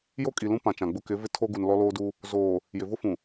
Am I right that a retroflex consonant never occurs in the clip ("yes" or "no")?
yes